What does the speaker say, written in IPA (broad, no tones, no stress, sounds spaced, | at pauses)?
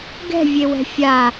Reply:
ɡ ɛ̤ vʲ e w ɛ̤ fʲ a